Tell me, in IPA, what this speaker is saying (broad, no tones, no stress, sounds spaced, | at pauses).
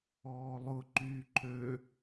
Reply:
ɔː lˠ ʊ ǃ yː ǃʰ ø